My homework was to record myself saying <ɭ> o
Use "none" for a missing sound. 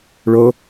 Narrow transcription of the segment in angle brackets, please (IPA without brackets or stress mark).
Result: ɭ